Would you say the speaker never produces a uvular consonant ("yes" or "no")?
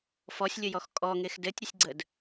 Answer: yes